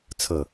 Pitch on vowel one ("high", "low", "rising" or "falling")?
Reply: falling